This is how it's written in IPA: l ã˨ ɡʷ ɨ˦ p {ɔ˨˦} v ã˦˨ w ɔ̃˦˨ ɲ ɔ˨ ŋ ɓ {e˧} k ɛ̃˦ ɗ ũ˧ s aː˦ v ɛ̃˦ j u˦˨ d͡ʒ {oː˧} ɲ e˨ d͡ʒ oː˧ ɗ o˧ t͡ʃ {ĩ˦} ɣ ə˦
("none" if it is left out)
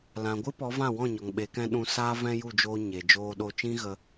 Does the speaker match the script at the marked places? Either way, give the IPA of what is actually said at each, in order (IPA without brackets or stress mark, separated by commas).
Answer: ɔ˨˦, e˨˦, oː˧, ĩ˦